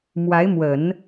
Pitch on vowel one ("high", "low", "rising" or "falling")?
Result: rising